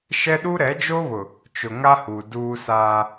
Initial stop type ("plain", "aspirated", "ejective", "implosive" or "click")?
implosive